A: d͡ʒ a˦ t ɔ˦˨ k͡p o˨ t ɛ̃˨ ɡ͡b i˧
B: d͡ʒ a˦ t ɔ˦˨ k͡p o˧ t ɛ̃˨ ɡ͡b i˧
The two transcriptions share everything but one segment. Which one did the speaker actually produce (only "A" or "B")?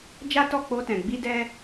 B